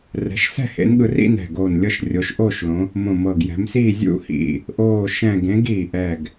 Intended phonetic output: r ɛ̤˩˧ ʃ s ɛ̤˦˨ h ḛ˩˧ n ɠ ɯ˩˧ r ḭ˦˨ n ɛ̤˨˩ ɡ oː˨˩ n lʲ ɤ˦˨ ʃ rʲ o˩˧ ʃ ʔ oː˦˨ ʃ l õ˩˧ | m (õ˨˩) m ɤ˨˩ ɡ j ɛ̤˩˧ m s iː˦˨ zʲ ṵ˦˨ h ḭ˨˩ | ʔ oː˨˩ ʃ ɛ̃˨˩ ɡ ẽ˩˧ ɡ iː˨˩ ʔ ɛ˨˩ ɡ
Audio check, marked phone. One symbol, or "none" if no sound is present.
õ˨˩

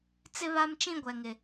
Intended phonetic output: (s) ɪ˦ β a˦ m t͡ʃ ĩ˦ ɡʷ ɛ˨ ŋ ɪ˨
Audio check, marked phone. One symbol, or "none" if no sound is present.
t͡s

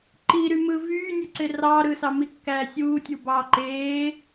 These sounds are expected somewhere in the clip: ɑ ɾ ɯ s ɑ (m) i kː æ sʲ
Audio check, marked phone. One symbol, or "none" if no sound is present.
m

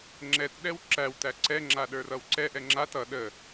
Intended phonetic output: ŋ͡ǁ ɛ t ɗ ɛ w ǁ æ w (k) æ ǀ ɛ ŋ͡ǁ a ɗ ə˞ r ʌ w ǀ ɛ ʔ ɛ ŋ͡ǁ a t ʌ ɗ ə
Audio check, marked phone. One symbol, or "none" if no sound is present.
t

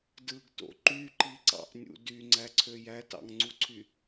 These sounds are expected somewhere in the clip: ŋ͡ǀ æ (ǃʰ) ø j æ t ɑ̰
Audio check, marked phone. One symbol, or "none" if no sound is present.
ǀʰ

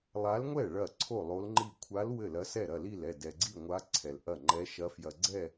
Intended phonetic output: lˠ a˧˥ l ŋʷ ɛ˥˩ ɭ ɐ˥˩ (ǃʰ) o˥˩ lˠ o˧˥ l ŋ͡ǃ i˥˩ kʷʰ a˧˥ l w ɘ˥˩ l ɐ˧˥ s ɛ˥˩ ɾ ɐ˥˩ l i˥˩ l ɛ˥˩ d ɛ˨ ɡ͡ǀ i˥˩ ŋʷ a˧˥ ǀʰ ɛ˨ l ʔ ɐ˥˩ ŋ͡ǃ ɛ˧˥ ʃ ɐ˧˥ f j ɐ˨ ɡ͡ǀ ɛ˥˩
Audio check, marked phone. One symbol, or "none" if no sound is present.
ǀʰ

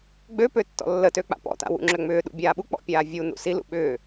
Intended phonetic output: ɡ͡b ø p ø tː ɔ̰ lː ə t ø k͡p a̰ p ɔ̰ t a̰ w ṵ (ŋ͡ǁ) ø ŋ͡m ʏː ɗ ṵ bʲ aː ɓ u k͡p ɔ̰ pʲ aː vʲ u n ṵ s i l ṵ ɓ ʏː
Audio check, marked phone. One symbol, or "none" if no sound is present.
ŋ͡ǁ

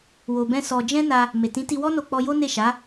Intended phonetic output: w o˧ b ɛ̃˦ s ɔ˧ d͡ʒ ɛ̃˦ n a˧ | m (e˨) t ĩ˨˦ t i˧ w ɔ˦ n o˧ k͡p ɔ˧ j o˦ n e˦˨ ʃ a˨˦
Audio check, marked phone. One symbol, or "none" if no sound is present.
e˨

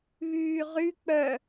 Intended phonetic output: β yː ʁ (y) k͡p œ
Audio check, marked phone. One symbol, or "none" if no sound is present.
y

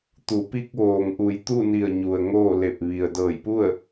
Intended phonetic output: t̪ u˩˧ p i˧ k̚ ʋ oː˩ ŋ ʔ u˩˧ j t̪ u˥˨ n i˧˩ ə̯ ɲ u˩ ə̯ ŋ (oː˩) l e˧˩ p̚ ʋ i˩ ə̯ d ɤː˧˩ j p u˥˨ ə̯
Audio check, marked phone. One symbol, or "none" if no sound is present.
oː˥˨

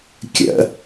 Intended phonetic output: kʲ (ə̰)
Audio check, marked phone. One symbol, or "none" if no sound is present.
ə̰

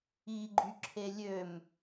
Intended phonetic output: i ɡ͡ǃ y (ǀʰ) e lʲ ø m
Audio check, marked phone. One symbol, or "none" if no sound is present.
ǁʰ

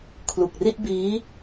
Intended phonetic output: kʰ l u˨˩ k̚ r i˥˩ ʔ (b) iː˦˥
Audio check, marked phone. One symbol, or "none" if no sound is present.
b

